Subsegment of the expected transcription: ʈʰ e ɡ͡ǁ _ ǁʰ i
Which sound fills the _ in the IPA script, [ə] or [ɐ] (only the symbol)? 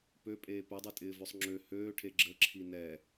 ə